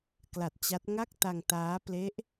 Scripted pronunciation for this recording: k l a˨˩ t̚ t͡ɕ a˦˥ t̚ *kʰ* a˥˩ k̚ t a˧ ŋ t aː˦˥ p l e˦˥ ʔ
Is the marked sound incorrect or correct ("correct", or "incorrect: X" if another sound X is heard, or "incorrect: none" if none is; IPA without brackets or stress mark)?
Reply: incorrect: ŋ